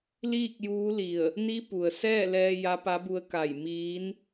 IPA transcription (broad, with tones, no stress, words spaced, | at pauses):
liː˥˨k̚juː˧˥li˧˩ə̯ | ni˧˥pu˩ə̯sɛː˥˨lɛː˧ ja˧˥pa˧˥bu˧˥ə̯ ka˧˩j miː˧˥n